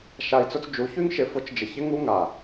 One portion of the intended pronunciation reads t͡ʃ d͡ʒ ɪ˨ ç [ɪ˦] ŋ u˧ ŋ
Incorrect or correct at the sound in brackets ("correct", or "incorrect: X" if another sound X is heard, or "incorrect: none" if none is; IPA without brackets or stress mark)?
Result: correct